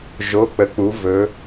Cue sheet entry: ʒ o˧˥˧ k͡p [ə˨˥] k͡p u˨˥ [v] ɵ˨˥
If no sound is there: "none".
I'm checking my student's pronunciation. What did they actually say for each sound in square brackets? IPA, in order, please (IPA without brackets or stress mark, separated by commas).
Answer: ə˨˥, v